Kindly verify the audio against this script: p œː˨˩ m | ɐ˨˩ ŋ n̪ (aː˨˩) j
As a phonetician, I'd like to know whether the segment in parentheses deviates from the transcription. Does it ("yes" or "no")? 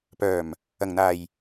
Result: no